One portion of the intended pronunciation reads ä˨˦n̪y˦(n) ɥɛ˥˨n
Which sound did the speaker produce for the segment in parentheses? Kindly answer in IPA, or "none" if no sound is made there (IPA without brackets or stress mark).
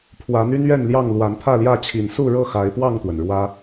n